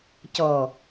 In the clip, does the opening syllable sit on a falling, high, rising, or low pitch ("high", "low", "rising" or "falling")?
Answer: low